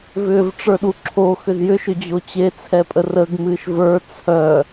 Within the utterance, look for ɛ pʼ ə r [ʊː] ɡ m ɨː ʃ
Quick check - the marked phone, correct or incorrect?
incorrect